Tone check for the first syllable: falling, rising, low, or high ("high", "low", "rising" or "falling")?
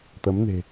rising